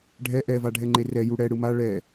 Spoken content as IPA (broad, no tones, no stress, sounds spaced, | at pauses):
ɖʱ ɛ ʔ ɛ v a ɖʱ ɛ ŋ͡ǃ e r ɛ j u ɽ ɛ ɽ ɯ m a ɭ ɛ